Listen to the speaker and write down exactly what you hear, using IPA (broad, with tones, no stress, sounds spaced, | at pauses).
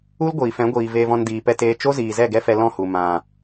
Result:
u˦ l ɡʷ iː˨ f ɛ̃˨˦ ɡʷ iː˨ v eː˧ v ɔ̃˧ n d iː˨ p ɛ˧ t eː˧ t͡ʃ o˦ z iː˨ z ɛ˦˨ ɡ ɛ˦ f ɛ˧ l ɔ̃˦˨ h u˨ m ã˨